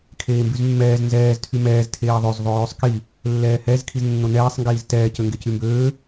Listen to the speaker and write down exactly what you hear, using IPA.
kʰ eː m b y z mː ɛː z n z ɛː z tʰ y m ɛː z tʰ eː ðˤ ø z ðˤ o j ʉ sˤ k i | lː ɛː h ɛ z kʰ i z nː o n ɛː sˤ ŋ ɡ iː z t ɛː c ø ŋ ɡ e c y m b øː

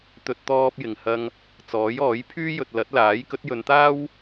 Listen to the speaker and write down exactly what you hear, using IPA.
t̪ ɵ˧ t̚ t̪ ɔː˧ p̚ j ɪ˨˩ ŋ h ɐ˧ ŋ | t͡s ɔː˨˥ j ɔː˨˥ j pʰ yː˥ j ɵ˨ t̚ l ɐ˨˥ t̚ l aː˨˥ j k ɵ˨˥ t̚ j ɵ˨˧ n t̪ aː˥ w

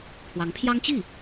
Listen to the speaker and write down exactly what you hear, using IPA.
pʰ w ɑ˧˥ ŋ pʰ j ɑ˥ ŋ t͡ɕ i˥˩

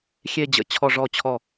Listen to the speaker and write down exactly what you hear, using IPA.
xʲ e˥˧ d͡ʑ ə̰˨˩˦ t͡ɕʰ ɔ˥˧ ʐ ɔ˥˧ t͡ɕʰ ɔ˥˩

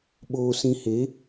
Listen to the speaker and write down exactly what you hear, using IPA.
ɓ oː˧ s ĩ˧ h e˨˦

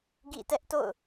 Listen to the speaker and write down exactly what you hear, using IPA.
ɡ ḭ˦˨ t ɛ˦ ʔ t o̰˦˨ ʊ̯

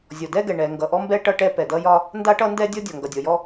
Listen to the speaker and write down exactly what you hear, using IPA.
zʲ ɔ˩ d ɛ˥ ɡ ɛ˩ ɳ ɛ˩ ŋ ɡ ʌ˩ ʔ ɔ˥ m b ɛ˥ ʈ ʌ˥ ʈ ɛ˥ p ɛ˩ d ʌ˥ j ɒ˥ | n d a˥ ʈ ʌ˥ n d ɛ˥ dʲ ɔ˥ dʲ ɒ˩ ŋ ɡ ʌ˩ dʲ ɔ˩ j ɔ˥

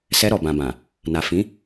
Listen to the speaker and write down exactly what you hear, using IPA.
s ɛ˧ ɾ ɔ˨ b ã˨ b ã˨ | n a˨ f ĩ˨˦

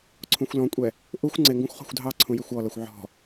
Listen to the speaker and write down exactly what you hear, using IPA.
ǀʰ ũ xʷ l ɔ̃ kʷʼ ɛ | ʔ u xʷ ŋ͡ǀ ɪ ŋ ɡ ũ xʷ χ ɔ̤ xʷ dʱ ɑ ǀʰ ũ j ɪ xʷ ɔ l ʌ xʷ ʕ ɔ̤

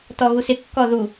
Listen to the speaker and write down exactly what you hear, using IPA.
t ɔ ɣ u s ɪ kː ɔ ð u

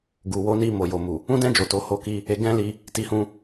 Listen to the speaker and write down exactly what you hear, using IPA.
ɡ u˨ w o˨˦ n i˧ m o˨ j o˨ m u˨ | ũ˦ d ɛ̃˦ d͡ʒ o˦˨ t o˧ h o˦ k i˦ | e˧ ɡ ɛ̃˦ l i˧ | t i˧ h ũ˧

